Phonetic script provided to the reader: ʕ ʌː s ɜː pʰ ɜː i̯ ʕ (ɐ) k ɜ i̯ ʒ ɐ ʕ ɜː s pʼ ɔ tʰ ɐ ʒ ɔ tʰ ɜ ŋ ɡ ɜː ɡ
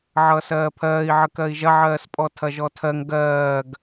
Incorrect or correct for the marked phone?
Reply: incorrect: ə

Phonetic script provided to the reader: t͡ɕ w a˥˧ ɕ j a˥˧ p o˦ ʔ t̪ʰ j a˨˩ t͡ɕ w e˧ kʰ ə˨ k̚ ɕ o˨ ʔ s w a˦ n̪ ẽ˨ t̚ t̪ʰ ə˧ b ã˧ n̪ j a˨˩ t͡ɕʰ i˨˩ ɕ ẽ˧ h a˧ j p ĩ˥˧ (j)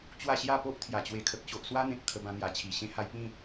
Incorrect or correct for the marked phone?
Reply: incorrect: none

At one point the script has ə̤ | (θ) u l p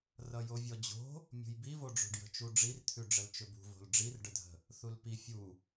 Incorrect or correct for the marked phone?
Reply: correct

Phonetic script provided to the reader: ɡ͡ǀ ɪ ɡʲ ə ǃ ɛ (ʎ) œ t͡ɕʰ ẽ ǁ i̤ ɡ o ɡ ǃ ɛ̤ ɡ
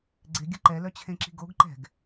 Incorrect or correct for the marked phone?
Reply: incorrect: l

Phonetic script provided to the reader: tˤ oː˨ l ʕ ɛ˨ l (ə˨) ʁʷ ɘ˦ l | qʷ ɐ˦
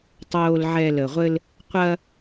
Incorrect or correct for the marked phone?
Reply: correct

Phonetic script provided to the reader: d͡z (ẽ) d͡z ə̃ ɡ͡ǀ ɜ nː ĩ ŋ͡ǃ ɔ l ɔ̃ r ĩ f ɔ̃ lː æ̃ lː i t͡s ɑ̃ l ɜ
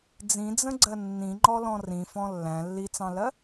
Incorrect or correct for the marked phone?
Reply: incorrect: ĩ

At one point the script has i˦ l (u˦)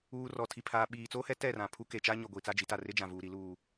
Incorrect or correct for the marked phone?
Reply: incorrect: uː˦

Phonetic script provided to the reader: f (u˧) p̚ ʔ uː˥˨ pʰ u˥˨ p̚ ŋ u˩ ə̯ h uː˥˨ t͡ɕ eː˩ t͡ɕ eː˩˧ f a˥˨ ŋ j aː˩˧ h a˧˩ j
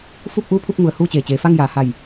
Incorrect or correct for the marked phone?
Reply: incorrect: u˥˨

